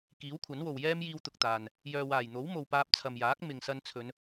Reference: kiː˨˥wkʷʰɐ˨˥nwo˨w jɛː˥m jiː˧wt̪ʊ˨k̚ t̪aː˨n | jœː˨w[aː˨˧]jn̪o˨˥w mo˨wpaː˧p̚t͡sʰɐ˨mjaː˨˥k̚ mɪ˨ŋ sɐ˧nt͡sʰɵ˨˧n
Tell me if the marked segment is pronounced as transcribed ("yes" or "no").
no